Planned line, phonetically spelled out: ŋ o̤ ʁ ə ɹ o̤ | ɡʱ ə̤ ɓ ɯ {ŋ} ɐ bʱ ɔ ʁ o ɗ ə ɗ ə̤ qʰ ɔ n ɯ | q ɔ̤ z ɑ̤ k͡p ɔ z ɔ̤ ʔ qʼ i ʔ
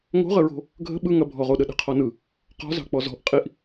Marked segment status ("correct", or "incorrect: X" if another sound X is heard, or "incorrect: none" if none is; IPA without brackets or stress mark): correct